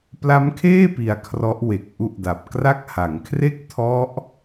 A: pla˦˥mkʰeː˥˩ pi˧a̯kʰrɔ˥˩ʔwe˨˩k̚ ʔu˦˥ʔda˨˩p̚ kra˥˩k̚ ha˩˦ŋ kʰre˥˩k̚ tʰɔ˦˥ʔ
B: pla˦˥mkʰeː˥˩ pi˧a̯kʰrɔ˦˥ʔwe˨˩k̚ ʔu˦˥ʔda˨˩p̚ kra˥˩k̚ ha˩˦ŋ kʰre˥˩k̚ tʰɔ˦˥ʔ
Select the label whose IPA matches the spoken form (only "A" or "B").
B